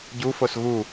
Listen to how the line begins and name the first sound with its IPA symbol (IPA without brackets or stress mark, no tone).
ɟ